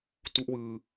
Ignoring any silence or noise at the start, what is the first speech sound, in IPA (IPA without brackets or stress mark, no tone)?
t